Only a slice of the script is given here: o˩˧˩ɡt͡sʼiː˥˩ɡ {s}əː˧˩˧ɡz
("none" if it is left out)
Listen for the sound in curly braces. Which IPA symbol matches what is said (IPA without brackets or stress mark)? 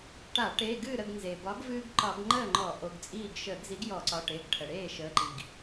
ʃ